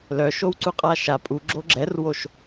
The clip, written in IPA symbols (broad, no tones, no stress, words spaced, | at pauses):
lœʃowǀu qʼaʃa pʼu ɡ͡ǁoɡ͡ǁɛrwoʃ